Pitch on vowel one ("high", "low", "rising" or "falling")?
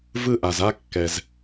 high